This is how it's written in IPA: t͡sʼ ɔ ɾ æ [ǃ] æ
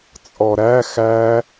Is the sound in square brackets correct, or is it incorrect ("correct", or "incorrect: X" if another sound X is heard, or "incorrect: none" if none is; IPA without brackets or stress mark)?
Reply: incorrect: x